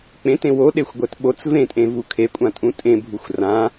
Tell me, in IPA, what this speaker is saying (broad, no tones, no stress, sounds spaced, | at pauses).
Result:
k͡p ẽ t ẽ w o ɗ e xʷ ɡʷ ɛ t ɓ o t͡s v ẽ tʼ ẽ v u kʰ e kʷʼ ã tʼ ũ tʼ ẽ bʱ u xʷ r ã